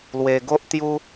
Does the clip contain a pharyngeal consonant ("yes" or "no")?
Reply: no